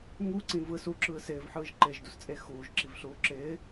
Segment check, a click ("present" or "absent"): present